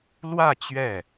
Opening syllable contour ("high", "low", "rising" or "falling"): falling